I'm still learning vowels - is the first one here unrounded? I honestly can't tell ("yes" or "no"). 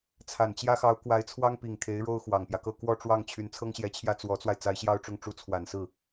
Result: yes